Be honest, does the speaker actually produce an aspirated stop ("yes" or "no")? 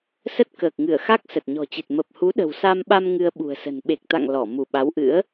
no